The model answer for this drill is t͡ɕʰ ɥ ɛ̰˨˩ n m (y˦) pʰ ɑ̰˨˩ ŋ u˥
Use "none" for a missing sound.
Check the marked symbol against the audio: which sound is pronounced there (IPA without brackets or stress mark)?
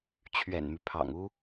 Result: y˦